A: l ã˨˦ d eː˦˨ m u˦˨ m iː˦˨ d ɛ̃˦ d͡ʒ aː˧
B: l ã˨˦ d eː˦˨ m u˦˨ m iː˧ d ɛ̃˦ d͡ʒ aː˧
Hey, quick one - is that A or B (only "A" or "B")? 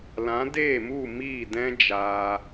A